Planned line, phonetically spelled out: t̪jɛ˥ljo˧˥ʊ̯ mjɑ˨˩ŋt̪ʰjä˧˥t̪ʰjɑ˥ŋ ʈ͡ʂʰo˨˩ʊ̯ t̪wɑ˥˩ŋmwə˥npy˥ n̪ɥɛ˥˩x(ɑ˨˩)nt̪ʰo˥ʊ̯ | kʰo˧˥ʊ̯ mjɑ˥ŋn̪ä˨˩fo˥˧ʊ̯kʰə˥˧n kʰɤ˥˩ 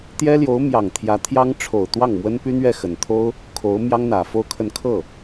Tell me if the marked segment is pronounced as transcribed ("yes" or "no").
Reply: no